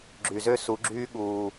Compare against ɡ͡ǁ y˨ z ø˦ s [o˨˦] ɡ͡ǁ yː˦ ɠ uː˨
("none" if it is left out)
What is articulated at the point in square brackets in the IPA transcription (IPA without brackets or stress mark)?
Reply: u˨˦